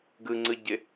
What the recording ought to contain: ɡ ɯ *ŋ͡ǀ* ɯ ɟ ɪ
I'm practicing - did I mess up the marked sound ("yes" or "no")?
no